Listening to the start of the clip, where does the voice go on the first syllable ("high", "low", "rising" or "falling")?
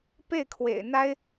falling